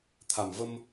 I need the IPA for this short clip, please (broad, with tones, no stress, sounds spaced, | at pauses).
t̪ʰ a˨˩ m v ə˧ m